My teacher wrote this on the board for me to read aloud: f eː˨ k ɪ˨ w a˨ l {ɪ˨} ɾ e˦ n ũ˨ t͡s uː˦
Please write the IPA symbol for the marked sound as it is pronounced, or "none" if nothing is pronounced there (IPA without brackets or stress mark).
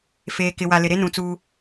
ɪ˨